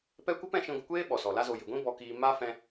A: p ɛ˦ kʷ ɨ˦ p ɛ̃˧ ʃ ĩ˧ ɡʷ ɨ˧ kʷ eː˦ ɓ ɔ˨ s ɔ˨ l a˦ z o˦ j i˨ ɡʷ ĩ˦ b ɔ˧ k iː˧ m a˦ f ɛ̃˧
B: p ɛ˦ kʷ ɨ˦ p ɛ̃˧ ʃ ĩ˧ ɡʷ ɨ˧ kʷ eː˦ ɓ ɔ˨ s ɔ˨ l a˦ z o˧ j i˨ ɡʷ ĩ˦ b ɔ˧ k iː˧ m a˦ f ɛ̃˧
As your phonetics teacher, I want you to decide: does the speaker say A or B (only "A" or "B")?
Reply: B